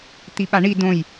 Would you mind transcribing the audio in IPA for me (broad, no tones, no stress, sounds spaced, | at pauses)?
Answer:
t̪ i ɓ a ɳ i d õ j